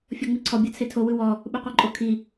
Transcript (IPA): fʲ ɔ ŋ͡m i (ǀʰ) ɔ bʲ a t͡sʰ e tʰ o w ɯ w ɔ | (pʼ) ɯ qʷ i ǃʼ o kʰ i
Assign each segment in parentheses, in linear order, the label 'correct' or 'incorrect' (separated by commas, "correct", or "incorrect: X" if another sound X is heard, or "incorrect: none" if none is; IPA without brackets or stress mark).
correct, incorrect: ɓ